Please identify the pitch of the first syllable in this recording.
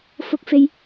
high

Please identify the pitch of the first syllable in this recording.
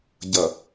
low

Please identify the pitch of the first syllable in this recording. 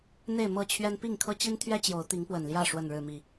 falling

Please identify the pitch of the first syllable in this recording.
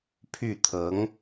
falling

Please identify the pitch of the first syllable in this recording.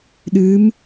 rising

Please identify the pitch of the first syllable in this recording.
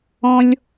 high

